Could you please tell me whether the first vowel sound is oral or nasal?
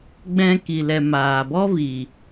nasal